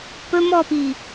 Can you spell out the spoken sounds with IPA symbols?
p ɵ m ɔ p i

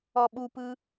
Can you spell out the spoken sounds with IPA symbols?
ɔ ɓ u p ɯ

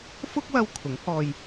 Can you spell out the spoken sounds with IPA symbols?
f ʊ˥ k̚ w ɐ˧ w kʰ ʊ˨˥ ŋ h ɔː˧ j

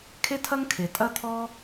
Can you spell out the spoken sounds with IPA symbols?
kʰ e˥ tʰ ɐ˥ ŋ kʰ e˩ tʼ ɐ˥ t̪ʰ ɔ˥

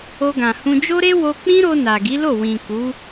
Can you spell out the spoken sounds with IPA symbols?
o˧ ɡ ã˨ h ũ˧ d͡ʒ o˦ ɾ e˦ w o˧ k͡p ĩ˦ ɾ o˧ n a˨ ɡ i˨˦ l o˦˨ w ĩ˨ k u˨˦

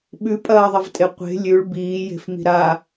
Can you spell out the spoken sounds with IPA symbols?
ɓ ʉ pʼ ɐː ðˤ ɐ v tʼ e qʷ e̤ lʲ ʉ ɭ b iː j e̤ f m i̤ ɾ a

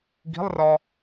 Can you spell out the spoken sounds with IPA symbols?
ɡ i̤ lˠ r ɒ

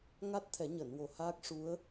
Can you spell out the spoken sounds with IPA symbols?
ŋ a˦˥ t̚ t̪ʰ ɛ˨˩˦ ɲ əː˨˩˨ n w o˨˩ h aː˦˥ k̚ ʂ u˧˥ ə̯

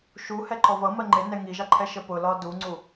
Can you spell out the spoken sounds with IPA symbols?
ʃ u h ɛ ǃ ɔ v ʌ m ɜ ŋ͡ǃ ɪ n ɛ ŋ i ʒ ɑ ǃʰ ɛ ʃ ə p ʊ l ɒ d u ŋ͡ǀ u

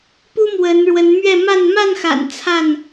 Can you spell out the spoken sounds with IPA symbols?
p u˦ m w ə˨˦ n ɻ w ə˨˦ n m ɥ ɛ˥˨ m a˥˨ n m a˥˨ n x a̰˨˩ n t͡sʰ a˥˨ n

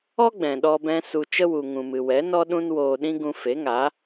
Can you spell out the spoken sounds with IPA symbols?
ɔ˦ ɡ͡b ɛ̃˨ ɗ ɔ˧ b ɛ̃˧ s u˧ t͡ʃ ə˧ w u˨ ŋ ũ˨ m ɨ˨ w ɛ˨˦ n ɔ˦ ɗ ũ˦ n w oː˧ ɗ ĩ˦ ɡ ũ˧ f e˨˦ ŋ a˨˦

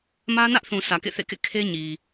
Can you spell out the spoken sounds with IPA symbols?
m ä˦ n ä˦ ʔ θ ũ˨ sʰ ä˨ k ḛ˦˨ θ ḛ˦˨ k ḛ˦˨ kʰ e˦ ɲ i˨

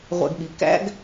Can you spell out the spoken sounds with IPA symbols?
ʁʷ æ̰˦ ɡ ɓ i˨˥ k æ̰˦ ɡ

